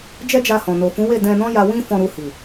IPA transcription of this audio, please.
d͡ʒ ɛ˦ d͡ʒ a˧ h ɔ̃˨ n o˨ f ũ˨˦ w e˦˨ d ɛ̃˧ n ɔ̃˦ j a˧ w ĩ˦ f ɔ̃˧ ɾ u˧ h i˨

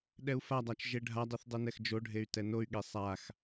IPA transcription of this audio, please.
ɗ ɛ u̯ f a dˤ a t͡ʃ ʒ e ɖʱ a dˤ ɯ θ dˤ ɯ n ɛ x d͡ʒ o ɖʱ e y̯ t ɛ n o y̯ ɠ e sˤ a x

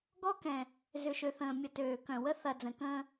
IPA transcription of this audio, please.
ɡ ɔ˦ k ɛ̃˨ | z ʏ˨ ʃ ø˨ θ ə̃ː˨ mʲ ʊ˨ t øː˨ k œ̃˨ w ə˦ θ ɐ˨ d͡z ə̃˨ k ə̃ː˦

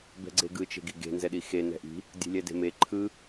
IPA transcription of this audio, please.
b ɛ̤ ɡ͡ǀ e ɡ ɯ t͡ʃ e̤ ɡ i ɡ e̤ n z ɛ ɗ i x e n ɛ̤ ʔ i̤ | dʲ e̤ lʲ ɛ d e̤ m e ǃʰ ɯ

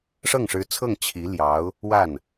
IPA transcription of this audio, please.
ʂ ɤ˥˩ ŋ ʂ ɻ̩˧˥ t͡sʰ ɤ˥˩ ŋ t͡ɕʰ i˧˥ l j ɑ˧˥ ʊ̯ | w a˥˩ n

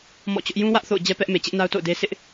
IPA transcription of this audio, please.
m ɔ̰˦˨ t͡ɕ ʊ˦ ʔ j ũ˦ w ä˦ ʔ θ o̰˦˨ ʊ̯ d͡ʑ ɛ˦ p ɛ˦ ʔ m e˨ t͡ɕ ɪ˦ ʔ n a˦ ʊ̯ t o̰˦˨ ʊ̯ d e˦ sʰ ɪ˦ ʔ

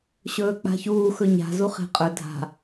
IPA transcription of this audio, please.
ɕ ɵː k͡p a̤ ç uː x ɵ ɲ a̤ z u χ e̤ qʼ ɵ dʱ a̤

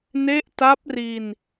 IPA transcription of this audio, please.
n e˦˥ ʔ t a˦˥ p̚ r i˧ n

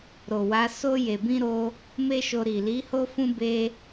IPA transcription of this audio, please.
ɾ o˨ w a˨˦ s o˧ j e˨ b ĩ˧ ɾ o˧ | m e˦ ʃ o˧ ɾ i˨ l i˨˦ h o˦ f ũ˦ b e˦

